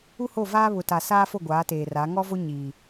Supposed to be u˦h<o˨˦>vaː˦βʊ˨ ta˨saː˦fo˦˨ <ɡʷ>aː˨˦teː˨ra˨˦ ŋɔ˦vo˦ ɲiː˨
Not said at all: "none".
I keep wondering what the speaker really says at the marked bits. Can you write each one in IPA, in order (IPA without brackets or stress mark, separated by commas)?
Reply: o˦˨, ɡʷ